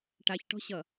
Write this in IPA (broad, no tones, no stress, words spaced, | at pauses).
ʈaçʈɔ̤ ɕʌ